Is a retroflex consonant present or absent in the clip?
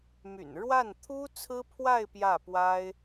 present